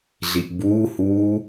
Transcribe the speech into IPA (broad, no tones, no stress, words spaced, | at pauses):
ɮiʔbuːhuː